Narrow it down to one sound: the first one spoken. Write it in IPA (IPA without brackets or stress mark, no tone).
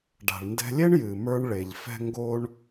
ɖ